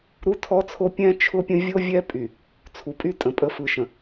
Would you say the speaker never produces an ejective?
no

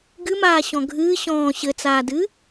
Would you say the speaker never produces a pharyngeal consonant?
yes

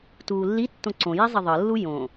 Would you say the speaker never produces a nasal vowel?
no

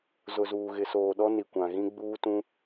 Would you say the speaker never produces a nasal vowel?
no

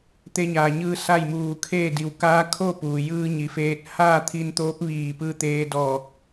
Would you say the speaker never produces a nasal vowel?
yes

